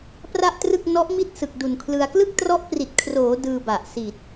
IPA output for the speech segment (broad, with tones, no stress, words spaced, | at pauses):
pra˥˩ʔtrɯ˥˩k̚ nɔ˦˥ʔmi˥˩t̚ sɯ˨˩k̚du˨˩nkʰlɯ˧a̯ klɯ˥˩k̚trɔ˦˥ʔpri˨˩t̚kʰroː˩˦ dɯː˧ba˨˩ʔ si˨˩t̚